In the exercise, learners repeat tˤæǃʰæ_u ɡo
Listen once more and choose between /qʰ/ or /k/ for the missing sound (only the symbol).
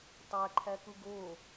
k